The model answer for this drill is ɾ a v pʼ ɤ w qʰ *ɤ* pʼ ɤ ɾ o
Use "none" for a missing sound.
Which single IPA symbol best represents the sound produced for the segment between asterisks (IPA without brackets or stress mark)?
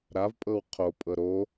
o